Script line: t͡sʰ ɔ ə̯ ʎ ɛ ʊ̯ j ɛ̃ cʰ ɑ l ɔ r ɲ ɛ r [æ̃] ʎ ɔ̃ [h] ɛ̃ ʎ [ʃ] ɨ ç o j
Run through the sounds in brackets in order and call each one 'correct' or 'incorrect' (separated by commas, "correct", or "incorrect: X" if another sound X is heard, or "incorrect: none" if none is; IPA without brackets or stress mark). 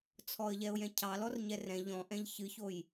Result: incorrect: ɛ̃, incorrect: ʔ, incorrect: ç